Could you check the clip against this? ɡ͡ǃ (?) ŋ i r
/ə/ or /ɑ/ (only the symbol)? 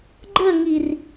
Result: ə